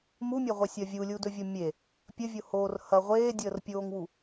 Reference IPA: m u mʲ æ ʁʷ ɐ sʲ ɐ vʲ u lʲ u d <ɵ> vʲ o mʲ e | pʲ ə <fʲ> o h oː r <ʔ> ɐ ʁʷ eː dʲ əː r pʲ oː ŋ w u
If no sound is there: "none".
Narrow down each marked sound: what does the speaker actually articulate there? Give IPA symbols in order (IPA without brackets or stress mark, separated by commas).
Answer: ɵ, vʲ, h